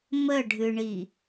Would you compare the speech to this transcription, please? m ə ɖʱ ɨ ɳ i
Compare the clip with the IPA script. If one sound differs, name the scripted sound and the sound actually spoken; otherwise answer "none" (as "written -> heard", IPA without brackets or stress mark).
none